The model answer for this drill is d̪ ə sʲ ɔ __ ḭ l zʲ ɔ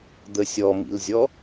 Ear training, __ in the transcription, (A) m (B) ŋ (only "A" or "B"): A